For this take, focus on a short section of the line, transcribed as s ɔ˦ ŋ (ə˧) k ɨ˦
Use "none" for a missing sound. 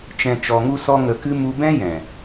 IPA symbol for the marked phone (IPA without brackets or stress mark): ə˧